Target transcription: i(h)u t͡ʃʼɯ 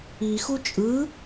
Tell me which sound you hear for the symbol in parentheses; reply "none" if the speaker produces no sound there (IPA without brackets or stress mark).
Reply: x